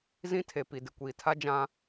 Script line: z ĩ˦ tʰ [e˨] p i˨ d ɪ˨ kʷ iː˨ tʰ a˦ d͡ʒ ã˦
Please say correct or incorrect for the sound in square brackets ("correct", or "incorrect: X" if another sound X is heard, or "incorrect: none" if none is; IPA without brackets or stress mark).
correct